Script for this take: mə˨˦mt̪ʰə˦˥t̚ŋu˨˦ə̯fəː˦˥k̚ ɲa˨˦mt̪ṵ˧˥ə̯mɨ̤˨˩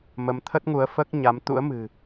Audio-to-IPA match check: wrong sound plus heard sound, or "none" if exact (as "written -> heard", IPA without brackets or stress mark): none